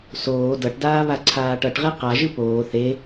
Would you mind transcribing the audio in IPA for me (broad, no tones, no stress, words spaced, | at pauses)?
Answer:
soː dʌʈdaː βaǀʰaːʈʌʈʁe qaʒɯ poː θe